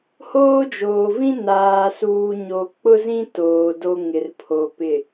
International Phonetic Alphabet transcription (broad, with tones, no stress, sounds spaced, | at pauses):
h oː˦ d͡ʒ oː˨ v ĩ˦ n aː˨ s uː˨ ɲ o˨ k͡p ʊ˦ z ĩ˦ t oː˨ d o˦ ŋ ɪ˨ r pʰ o˨ p ɪ˨